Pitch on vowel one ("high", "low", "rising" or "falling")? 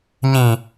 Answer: low